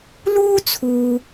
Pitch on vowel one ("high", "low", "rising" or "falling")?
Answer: high